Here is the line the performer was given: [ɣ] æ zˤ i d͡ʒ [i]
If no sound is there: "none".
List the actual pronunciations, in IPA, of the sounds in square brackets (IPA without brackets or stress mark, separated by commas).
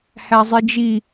h, i